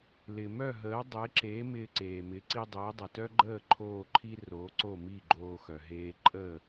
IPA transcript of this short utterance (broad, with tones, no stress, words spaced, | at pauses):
lɪ˩ mœ˥˩ɦəː˩˥dˤe˩˥ǁe˩˥ mɪː˧ǀeː˩mɪ˩˥ ǀi˧dˤɪː˩˥dˤə˩tœ˥ ɡ͡ǃəː˥˩ ǃʰoː˥˩ǃʰi˥ ro˩˥ ǀo˥˩mi˥˩ɡ͡ǃoː˧ xœ˩ɦeː˧ ǃʼəː˥˩